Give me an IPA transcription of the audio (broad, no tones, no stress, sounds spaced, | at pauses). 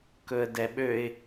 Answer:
k ɵ ə̯ d ɛ ɓ ø ɪ̯